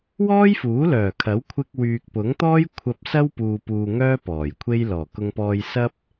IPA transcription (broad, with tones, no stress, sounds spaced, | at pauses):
w ɔː˥ j f uː˨˥ l œː˨˩ kʰ ɐ˨˥ w kʷʰ ɪ˧ k̚ w yː˨ k̚ p ʊ˨˥ ŋ t̪ ɔː˥ j kʷʰ ɐ˧ p̚ s ɐ˥ w p uː˧ p uː˧ ŋ œː˥ p ɔː˨˩ j kʷʰ e˥ j l ɔː˨˩ k ʊ˧ ŋ p ɔː˧ j s ɐ˥ p̚